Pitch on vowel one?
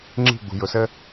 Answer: falling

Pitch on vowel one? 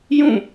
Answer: falling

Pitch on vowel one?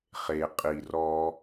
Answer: low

